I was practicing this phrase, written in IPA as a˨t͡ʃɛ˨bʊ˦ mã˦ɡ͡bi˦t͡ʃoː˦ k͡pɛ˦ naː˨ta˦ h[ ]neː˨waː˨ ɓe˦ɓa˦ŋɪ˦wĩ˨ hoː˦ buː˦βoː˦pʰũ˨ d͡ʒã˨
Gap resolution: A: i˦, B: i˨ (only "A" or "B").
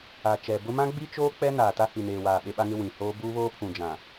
B